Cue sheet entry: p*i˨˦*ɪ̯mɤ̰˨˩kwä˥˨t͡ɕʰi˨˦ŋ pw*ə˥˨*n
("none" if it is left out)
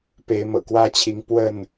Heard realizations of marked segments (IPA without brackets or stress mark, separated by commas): e˨˦, ə˥˨